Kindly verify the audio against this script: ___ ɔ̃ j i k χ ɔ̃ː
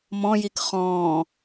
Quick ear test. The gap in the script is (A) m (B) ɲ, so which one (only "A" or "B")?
A